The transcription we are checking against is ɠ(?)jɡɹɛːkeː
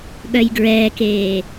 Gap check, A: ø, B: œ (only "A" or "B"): B